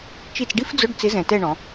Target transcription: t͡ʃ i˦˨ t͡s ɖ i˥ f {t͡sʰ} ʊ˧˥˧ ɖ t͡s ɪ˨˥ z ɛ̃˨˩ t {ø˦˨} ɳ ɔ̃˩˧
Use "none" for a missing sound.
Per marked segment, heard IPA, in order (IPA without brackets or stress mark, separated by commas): d͡z, ɛ˦˨